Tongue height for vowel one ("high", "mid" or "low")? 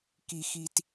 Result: high